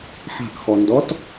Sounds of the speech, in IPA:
ħa̤kxɔndɔt

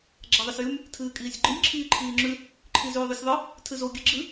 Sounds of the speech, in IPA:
ɡ͡ǁaðˤɐsjʉm | tʰɨːkʼiːsʲɡ͡ǃɨnʲ ǁʰiːǃʰiːŋ͡ǁʉ | ǃʰizʉːðˤʉsʲðˤɨ | tʰɨzo ɡʲɨɡ͡ǁɨ

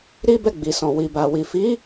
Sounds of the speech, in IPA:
ɾi˦bɛ˦˨ɡ͡bi˨sɔ̃˨ wi˨ba˨wi˨ fi˨˦

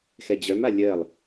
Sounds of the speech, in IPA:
xɛd͡ʑœma lʲɜlˠ

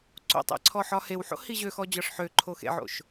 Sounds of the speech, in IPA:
ǀo̰tˤḛ ǀʰɔħɒhewħo̰ hiʑøxɔ d͡ʑɒʂħøǃʰo xḛʕo̰ʃ

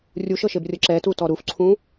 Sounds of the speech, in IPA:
rʲuʃɤʃebrʲɤ ǁɛtutɔ ɾufǀʰũ

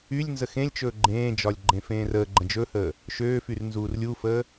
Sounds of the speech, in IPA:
ylʲ nzəxẽlʲt͡ʃɵː ɡ͡ǃẽːd͡ʒɒlʲ ɡ͡ǃẽfẽːrəːɡ͡ǃə̃ d͡ʒɵhəː | ʃøːfyr nzuːrlʲufəː

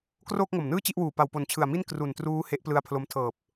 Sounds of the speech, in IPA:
kroː˥˩k̚ŋo˨˩mnɯː˥˩ t͡ɕi˥˩ʔwuː˨˩ pa˨˩wpo˨˩nt͡ɕʰɯ˨˩a̯mi˥˩n kru˨˩ntruː˦˥ he˦˥ʔplɯ˧a̯ pʰlo˧m tʰɤː˨˩p̚

